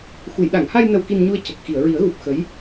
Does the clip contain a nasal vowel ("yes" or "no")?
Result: no